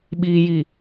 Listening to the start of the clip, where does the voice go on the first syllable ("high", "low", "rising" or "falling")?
low